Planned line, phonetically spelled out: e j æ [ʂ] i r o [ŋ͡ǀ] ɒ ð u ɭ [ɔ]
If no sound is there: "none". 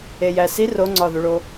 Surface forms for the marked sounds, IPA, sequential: s, ŋ͡ǀ, o

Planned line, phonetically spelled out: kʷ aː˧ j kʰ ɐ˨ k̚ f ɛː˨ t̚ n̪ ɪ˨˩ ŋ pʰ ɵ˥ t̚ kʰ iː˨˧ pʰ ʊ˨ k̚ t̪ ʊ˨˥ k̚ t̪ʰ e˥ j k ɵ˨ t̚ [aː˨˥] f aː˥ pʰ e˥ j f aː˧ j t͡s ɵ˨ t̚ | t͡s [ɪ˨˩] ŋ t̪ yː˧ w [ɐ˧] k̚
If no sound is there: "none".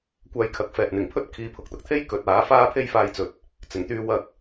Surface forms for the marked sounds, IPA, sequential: aː˨˥, ɪ˨˩, ɐ˧

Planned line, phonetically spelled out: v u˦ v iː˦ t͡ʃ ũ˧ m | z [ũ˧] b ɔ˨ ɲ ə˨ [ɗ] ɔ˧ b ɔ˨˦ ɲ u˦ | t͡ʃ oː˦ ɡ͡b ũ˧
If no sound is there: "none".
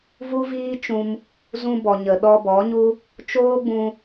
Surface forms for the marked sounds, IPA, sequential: ũ˧, ɗ

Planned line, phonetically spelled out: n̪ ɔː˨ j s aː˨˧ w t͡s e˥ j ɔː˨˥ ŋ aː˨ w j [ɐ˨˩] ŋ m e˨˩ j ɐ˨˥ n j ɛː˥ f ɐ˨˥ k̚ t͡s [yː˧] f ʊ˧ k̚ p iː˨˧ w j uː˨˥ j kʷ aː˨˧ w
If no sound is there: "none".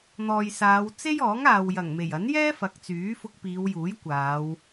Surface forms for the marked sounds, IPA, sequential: ɐ˨˩, yː˨˥

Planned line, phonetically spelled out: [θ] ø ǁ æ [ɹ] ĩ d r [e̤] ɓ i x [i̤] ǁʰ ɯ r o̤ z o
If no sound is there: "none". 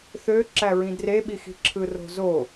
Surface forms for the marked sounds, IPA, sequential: θ, ɹ, e, i̤

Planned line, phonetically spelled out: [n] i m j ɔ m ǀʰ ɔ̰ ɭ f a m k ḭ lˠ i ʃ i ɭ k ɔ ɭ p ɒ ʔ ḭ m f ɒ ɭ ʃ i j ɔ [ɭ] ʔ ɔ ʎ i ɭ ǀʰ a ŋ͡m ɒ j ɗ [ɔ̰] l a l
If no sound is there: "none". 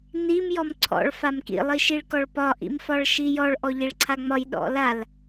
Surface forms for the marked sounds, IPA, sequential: n, ɭ, ɔ̰

